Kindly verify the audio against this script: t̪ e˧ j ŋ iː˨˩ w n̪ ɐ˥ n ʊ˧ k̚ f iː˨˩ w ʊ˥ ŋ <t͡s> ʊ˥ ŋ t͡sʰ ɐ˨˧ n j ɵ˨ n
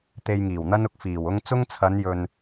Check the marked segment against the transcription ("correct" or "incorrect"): correct